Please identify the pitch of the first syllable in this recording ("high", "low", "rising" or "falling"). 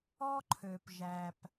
high